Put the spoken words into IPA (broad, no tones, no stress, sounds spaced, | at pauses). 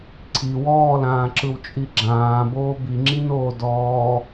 ǀʰ i w ɔː l ãː ǁ ɯ w t͡ʃʼ i ɡ͡ǁ ãː b oː b i ŋ͡ǁ i n oː d ɔː